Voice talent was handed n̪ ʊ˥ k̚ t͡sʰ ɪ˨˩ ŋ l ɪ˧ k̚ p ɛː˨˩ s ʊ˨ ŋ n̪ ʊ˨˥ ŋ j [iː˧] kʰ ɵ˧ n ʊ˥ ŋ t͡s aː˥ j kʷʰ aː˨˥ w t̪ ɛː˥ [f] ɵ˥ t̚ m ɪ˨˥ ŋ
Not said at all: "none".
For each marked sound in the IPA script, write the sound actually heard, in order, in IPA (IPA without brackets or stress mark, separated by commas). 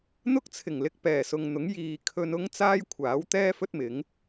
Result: iː˨, f